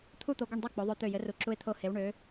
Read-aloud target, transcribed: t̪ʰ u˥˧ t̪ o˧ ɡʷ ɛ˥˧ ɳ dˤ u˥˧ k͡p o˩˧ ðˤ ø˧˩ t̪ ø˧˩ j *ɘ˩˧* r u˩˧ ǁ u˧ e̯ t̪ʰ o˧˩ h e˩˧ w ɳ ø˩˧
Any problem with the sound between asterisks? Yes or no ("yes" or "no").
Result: no